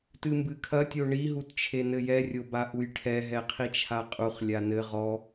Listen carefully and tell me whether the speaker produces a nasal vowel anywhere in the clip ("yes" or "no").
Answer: no